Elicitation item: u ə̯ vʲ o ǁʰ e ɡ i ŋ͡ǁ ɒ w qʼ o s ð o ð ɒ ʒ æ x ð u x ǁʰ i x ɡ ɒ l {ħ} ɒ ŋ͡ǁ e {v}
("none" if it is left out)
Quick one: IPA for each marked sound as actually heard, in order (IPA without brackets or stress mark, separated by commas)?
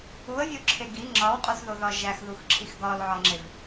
ʕ, v